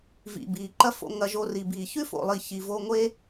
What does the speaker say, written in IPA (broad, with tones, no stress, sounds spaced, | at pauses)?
v ḭ˨ b iː˨ ǃ ɐ˦ f o̰˧ ŋ ɐ˧ ʒ o˧ r i˨ b iː˨ ç ʉ˦ f o̰˨ lˠ i˨ ç i˨ v o˧ ŋʷ e˦